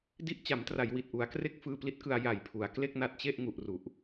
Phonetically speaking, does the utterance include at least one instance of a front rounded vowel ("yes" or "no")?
no